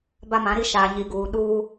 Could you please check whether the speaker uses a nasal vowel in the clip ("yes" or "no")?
yes